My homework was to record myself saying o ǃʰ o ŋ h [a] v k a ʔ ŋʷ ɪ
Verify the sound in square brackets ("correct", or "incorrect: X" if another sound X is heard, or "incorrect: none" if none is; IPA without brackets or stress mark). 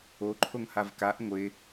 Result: correct